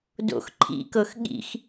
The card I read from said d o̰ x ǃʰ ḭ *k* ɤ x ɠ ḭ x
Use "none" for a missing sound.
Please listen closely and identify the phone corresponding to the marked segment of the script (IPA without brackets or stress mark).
k